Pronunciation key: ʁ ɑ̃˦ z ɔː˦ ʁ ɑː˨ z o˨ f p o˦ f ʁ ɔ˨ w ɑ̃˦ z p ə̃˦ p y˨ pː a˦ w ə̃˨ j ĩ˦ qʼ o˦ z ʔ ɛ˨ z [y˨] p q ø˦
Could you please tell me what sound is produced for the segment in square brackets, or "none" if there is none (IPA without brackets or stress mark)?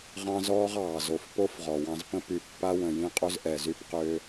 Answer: y˦